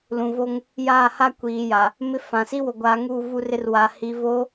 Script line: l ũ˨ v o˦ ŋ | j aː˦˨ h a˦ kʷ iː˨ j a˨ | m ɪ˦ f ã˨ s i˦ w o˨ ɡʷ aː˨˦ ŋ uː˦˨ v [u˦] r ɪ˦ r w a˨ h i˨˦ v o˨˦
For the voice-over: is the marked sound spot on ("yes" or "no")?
yes